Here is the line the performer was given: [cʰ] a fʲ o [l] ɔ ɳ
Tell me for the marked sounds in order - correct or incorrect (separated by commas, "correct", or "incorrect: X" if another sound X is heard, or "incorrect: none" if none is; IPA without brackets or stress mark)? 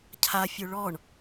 correct, incorrect: ɭ